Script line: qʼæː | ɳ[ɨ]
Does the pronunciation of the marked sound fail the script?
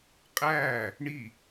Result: yes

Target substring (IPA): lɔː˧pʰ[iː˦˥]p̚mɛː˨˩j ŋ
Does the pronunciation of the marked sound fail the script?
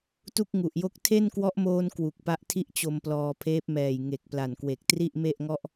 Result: yes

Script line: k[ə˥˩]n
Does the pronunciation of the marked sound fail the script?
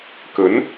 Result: yes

